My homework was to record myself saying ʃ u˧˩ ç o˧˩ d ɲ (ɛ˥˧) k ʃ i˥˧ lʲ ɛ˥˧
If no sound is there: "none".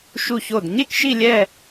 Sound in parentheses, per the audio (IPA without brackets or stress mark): e˥˧